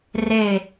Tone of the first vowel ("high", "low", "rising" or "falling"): falling